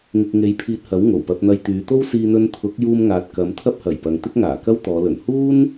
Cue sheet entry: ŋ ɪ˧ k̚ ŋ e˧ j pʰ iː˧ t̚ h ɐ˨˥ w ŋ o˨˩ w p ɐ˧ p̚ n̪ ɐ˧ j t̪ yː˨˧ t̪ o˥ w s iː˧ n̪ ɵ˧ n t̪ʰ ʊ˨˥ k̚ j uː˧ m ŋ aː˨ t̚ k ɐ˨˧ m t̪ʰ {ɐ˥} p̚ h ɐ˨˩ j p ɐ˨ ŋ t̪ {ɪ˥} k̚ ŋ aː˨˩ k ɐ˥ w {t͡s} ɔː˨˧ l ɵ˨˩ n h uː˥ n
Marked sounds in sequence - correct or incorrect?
correct, correct, incorrect

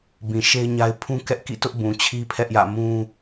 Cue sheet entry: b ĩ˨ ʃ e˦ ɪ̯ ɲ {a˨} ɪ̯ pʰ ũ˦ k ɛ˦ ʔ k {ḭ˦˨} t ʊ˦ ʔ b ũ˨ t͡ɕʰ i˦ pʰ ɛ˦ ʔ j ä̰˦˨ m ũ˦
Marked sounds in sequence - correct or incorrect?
incorrect, correct

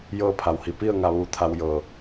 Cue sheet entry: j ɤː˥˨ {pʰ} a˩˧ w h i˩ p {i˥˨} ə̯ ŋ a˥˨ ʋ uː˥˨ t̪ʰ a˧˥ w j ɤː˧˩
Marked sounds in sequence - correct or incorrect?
correct, correct

